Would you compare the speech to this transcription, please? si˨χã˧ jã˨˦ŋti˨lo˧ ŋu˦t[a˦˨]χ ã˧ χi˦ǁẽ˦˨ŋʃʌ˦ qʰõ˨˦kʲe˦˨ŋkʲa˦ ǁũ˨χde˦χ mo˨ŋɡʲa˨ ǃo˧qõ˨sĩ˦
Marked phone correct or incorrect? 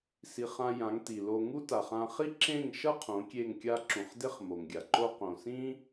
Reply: incorrect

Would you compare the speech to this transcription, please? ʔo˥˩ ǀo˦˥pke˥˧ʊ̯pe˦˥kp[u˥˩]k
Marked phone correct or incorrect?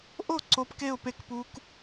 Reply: incorrect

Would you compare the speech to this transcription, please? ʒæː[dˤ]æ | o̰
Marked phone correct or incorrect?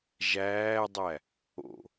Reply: correct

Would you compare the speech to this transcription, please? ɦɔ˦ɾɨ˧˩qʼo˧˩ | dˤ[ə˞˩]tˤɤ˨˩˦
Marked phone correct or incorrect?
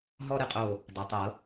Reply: incorrect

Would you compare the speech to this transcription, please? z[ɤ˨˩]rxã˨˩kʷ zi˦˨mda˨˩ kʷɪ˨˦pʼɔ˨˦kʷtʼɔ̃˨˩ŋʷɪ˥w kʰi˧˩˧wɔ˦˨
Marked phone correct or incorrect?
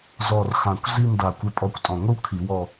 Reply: incorrect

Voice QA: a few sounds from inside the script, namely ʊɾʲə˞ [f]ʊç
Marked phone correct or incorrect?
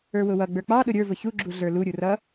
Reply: incorrect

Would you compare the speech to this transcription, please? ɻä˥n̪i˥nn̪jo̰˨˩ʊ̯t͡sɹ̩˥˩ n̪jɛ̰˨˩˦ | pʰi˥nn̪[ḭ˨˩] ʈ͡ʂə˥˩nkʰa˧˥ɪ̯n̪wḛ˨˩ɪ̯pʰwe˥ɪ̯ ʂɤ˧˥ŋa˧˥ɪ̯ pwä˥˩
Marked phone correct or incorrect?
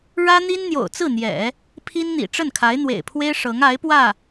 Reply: correct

